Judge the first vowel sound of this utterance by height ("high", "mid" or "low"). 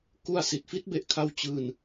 high